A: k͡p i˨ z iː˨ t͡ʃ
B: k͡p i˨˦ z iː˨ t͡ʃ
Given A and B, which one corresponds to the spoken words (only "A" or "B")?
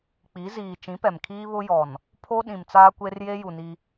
B